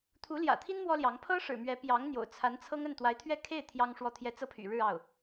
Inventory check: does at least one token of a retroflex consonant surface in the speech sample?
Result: yes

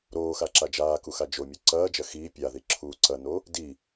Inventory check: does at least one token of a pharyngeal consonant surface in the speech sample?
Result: no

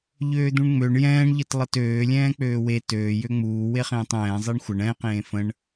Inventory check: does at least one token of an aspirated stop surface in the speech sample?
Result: no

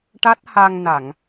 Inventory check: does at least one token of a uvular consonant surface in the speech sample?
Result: no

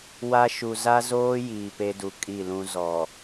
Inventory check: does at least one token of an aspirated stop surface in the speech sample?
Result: no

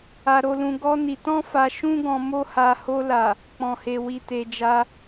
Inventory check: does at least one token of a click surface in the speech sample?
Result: no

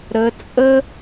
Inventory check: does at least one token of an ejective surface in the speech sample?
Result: yes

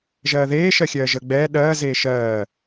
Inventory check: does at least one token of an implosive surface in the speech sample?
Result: yes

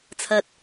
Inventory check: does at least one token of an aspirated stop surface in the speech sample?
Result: yes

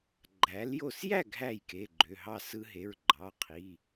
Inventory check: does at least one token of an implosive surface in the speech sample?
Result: no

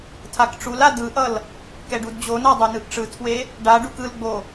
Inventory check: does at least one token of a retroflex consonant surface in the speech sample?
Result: yes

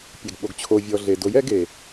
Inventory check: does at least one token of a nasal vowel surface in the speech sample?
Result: no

